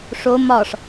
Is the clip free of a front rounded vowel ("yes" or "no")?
yes